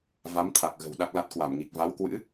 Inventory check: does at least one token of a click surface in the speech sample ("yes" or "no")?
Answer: no